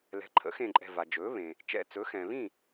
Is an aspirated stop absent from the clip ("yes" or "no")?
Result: no